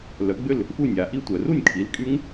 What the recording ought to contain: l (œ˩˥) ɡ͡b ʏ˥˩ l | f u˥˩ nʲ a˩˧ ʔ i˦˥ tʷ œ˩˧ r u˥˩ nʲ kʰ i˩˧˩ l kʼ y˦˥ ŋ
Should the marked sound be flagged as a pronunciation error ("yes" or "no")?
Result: no